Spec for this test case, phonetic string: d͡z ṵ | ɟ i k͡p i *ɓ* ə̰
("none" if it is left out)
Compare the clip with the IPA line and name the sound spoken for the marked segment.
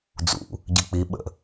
ɓ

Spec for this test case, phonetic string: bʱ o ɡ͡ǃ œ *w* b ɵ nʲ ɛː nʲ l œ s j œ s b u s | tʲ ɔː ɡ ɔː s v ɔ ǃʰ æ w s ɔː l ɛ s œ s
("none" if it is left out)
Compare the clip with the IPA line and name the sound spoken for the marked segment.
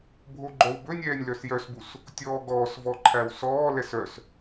w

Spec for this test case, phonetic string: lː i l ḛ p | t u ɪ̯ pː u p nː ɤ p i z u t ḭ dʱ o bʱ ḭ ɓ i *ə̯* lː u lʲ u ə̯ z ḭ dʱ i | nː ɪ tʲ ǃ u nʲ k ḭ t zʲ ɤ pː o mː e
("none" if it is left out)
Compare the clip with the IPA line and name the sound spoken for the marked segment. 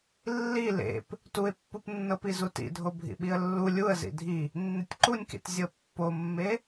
ə̯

